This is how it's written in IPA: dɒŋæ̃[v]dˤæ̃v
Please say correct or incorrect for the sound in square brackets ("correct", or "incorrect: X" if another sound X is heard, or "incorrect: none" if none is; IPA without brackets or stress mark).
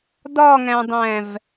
incorrect: none